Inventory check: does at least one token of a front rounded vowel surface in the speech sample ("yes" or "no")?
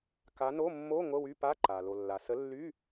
yes